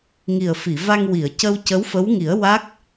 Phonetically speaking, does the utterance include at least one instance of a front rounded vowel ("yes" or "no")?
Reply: no